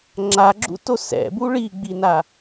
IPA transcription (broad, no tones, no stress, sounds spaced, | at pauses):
ŋ͡ǁ a ɡ͡ǁ ṵ t o s ɛ̰ b u ɭ i ɡ͡b i n a